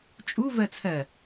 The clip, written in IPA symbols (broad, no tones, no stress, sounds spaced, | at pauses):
t͡ʃʼ u v ɜ t͡sʰ ɜ